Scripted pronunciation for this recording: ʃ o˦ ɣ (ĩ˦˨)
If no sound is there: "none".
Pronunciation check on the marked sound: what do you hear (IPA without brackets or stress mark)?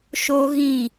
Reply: ĩ˦˨